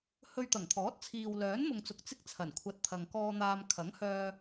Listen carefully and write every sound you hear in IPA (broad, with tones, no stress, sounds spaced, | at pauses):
h ɵ˧ ɥ t̪ ɐ˨˩ ŋ t̪ʰ ɔː˨˥ t̚ t͡sʰ iː˨ w l œː˨˥ n m ʊ˨ ŋ t͡s ʊ˨ k̚ t͡s ɪ˥ k̚ t͡sʰ ɐ˨˩ n kʷʰ ɐ˨˥ t̚ t̪ʰ ɐ˨ ŋ k ɔː˧ n̪ aː˧ m kʰ ɐ˨˥ ŋ h œː˧